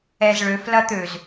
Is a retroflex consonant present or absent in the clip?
present